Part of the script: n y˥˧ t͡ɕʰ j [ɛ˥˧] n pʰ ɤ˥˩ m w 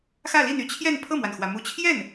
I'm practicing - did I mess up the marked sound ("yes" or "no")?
no